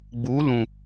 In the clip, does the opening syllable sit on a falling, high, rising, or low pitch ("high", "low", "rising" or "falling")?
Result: rising